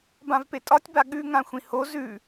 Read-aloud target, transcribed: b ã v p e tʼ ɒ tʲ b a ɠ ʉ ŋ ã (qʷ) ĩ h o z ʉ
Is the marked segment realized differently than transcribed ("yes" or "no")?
yes